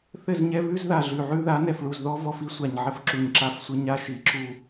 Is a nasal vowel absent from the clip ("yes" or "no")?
yes